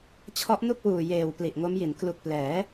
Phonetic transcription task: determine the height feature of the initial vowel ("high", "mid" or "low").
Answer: mid